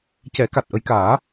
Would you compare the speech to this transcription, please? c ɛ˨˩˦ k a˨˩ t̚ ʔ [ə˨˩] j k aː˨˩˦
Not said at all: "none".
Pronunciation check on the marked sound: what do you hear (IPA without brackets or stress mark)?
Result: ə˧